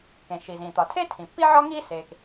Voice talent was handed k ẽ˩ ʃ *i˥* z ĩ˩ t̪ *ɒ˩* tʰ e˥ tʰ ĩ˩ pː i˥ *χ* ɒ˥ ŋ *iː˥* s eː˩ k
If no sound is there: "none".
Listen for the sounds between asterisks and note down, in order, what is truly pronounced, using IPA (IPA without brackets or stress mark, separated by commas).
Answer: i˩, ɒ˩, ʕ, iː˥